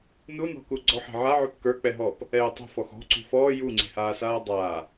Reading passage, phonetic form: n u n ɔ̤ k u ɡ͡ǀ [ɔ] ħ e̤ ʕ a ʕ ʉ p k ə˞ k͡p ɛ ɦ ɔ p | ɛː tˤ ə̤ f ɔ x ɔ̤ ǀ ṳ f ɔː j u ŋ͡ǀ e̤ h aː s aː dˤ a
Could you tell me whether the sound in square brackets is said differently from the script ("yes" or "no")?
no